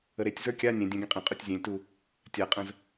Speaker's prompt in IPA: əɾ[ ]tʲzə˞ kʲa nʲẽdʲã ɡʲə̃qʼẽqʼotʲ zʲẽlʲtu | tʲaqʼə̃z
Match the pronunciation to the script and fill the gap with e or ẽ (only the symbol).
e